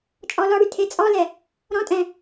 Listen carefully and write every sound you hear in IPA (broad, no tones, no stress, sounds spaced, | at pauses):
t͡ʃʼ ɔ l ɔ ɽ y tʰ e t͡sʼ ɔ l ɛ | ɾ ɔ̃ tʼ ɛ̃